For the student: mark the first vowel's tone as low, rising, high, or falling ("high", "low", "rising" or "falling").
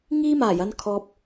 high